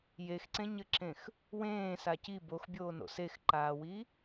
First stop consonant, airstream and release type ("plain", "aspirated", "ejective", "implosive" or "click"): click